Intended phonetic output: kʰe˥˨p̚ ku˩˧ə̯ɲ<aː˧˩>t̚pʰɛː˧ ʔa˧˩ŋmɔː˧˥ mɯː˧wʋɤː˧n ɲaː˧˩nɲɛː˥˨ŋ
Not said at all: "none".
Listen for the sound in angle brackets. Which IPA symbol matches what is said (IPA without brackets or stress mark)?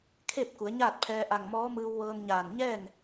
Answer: aː˥˨